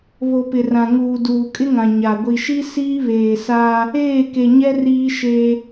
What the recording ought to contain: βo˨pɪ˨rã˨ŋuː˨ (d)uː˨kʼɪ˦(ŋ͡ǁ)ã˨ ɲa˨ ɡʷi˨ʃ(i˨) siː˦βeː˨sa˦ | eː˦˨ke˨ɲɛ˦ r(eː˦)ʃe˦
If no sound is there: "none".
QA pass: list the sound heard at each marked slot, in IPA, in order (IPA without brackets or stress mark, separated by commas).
d, ŋ, i˦, iː˦